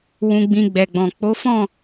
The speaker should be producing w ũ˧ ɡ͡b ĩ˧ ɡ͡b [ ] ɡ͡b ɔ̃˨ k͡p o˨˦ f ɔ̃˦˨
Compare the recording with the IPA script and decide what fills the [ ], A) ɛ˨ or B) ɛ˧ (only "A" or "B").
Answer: A